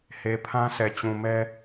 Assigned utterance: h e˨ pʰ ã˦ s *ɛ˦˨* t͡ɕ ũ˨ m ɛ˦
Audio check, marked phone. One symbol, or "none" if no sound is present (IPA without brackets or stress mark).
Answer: ɛ˨